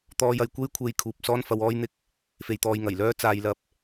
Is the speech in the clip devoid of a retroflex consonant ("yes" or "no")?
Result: yes